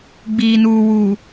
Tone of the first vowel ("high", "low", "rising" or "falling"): low